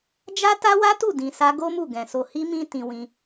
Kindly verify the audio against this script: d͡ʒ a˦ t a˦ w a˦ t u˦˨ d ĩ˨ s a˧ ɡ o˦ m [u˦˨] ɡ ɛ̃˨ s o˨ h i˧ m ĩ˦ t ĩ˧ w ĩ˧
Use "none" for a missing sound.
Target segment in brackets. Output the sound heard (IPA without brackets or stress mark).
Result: u˦˨